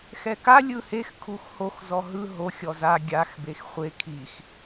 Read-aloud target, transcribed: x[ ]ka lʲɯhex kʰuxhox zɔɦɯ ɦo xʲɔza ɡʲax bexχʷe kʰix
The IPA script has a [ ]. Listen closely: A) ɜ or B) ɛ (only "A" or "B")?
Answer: B